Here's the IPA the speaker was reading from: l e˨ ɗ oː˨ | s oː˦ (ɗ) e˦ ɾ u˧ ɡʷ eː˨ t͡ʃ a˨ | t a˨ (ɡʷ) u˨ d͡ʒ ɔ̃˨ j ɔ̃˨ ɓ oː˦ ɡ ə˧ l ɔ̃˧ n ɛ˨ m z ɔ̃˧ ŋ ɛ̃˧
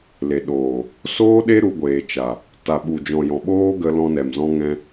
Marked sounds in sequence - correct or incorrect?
correct, incorrect: ɓ

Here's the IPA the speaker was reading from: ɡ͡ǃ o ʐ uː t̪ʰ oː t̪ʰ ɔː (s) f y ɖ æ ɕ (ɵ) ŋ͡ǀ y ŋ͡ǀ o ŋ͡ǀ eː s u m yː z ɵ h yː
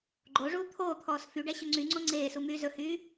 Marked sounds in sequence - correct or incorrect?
correct, correct

